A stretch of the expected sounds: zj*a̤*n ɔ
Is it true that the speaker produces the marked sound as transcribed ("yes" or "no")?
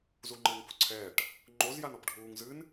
no